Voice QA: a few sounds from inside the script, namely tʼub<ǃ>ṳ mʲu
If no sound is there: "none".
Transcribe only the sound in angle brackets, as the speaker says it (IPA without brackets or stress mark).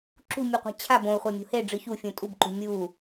ǃ